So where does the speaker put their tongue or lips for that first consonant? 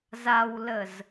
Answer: tongue tip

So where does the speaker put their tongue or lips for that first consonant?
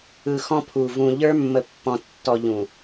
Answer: velum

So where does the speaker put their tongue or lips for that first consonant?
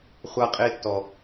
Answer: uvula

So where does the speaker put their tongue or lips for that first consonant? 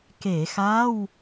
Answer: velum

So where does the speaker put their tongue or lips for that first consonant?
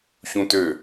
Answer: palate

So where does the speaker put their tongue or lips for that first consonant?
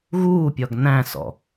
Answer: velum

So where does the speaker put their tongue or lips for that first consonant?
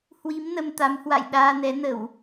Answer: throat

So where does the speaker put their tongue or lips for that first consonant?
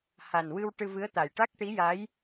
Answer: throat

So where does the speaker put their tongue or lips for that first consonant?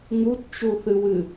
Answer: velum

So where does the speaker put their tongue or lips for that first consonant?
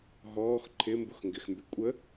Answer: throat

